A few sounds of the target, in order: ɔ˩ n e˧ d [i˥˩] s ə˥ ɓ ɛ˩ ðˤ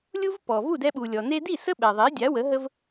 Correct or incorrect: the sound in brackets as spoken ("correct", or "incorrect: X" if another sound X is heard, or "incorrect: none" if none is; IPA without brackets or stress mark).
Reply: correct